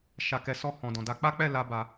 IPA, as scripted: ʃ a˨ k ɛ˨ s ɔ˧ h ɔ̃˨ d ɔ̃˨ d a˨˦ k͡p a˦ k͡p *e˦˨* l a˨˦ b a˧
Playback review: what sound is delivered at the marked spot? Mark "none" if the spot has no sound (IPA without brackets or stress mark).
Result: ɛ˦˨